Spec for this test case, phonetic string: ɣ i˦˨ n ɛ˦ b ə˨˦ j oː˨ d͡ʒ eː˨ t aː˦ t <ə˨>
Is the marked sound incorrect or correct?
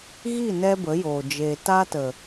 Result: correct